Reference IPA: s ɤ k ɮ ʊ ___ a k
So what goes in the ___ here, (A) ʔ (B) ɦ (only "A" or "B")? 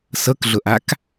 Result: A